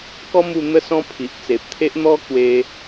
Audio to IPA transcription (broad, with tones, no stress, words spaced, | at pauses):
kɔ˦mu˧ n̪ə˥˧sɔ̃˦ pʰi˨ʔt͡se˨p̚t̪ʰe˦ʔ n̪ɔ˦ kwe˧